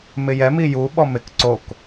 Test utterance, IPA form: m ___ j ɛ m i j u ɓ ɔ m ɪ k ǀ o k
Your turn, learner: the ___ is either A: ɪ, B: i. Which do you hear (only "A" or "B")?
A